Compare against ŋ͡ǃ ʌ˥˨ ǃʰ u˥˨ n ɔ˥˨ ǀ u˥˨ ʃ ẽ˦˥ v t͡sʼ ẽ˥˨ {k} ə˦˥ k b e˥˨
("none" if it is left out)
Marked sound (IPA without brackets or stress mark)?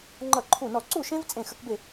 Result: x